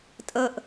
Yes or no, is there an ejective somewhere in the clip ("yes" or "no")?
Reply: yes